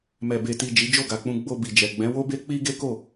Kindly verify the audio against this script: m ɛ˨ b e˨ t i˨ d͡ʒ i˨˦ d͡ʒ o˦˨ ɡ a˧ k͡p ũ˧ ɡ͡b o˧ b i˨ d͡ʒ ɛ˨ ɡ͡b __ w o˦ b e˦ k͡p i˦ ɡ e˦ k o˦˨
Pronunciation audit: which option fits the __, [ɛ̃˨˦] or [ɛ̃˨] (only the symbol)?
ɛ̃˨˦